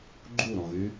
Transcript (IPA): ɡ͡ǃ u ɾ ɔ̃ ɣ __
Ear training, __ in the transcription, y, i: y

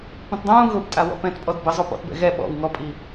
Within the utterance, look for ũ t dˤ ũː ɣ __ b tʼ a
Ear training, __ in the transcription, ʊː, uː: ʊː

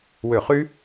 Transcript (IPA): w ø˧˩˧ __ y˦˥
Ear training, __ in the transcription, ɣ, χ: χ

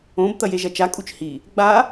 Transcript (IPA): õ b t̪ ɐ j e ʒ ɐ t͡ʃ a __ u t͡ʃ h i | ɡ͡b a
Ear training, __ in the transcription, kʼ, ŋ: kʼ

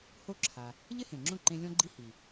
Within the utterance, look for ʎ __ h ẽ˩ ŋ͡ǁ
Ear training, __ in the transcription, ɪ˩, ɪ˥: ɪ˥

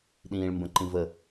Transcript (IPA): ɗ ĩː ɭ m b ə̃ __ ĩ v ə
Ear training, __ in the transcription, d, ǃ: ǃ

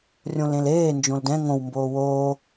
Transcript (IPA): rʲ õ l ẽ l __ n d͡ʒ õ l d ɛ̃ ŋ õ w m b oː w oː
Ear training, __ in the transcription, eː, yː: eː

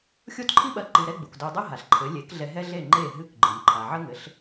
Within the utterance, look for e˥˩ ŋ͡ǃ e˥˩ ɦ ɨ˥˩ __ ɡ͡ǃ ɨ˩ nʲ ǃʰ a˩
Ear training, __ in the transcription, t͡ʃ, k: k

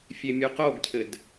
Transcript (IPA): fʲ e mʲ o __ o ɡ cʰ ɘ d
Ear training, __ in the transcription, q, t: q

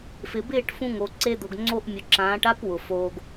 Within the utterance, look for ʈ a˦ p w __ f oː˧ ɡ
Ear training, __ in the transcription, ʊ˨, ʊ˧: ʊ˨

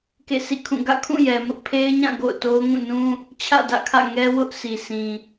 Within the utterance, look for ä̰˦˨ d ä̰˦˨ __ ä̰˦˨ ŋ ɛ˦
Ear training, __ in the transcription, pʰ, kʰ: kʰ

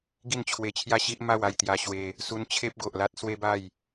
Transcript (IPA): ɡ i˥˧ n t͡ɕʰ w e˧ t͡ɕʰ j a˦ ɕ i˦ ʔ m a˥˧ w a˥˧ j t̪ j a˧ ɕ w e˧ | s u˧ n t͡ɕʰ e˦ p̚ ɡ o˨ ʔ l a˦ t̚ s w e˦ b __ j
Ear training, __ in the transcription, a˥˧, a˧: a˥˧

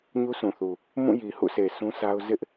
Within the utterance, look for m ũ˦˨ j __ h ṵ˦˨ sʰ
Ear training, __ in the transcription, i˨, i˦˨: i˨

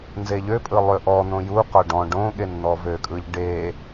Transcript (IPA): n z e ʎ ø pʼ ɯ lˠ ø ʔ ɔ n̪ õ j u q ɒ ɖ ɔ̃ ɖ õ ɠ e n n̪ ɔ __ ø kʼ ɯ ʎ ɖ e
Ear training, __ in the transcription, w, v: v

